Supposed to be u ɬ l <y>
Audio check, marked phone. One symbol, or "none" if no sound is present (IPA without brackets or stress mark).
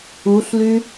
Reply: y